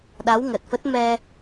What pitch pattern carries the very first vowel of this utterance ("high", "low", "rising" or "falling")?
rising